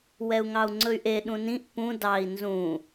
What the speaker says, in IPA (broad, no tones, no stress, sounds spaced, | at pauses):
w ɛ u̯ ŋ ɑ u̯ ŋ͡ǀ ɵ y̯ ʔ e ɗ ũ n ĩ ʔ p ũ d ɑ i̯ n z ũ